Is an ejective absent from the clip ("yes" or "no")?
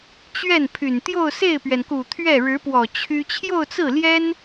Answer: yes